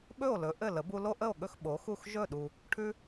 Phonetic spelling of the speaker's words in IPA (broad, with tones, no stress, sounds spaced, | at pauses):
ɓ ɵ˥˩ o̯ l ɵ˩˥ ʔ ɘ˥˩ l ə˩˥ b u˧ l o˥ ʔ ə˥˩ o̯ ɠ ɵ˥˩ x ɓ o˩˥ x u˥˩ x ʒ ɵ˥˩ ɗ u˩ | ʈʰ ʉ˧